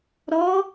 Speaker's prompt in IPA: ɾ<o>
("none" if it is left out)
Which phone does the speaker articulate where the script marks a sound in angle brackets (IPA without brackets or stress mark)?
ɔ